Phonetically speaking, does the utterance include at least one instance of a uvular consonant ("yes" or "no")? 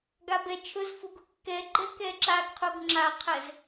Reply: yes